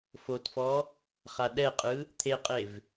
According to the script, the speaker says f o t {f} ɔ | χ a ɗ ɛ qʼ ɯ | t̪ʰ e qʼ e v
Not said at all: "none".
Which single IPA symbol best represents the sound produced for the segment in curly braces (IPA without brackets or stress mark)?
f